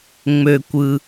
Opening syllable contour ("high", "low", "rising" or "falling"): low